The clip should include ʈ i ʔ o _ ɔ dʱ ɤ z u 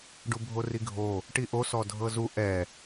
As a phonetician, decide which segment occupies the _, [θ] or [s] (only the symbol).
s